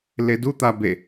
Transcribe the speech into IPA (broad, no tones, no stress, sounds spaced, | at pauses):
l e d u t̪ a b e